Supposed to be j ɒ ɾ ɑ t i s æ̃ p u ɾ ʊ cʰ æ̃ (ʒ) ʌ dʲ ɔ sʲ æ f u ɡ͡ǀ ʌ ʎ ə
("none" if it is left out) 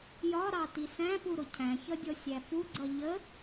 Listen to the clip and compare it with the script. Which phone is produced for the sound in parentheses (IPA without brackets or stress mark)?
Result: ç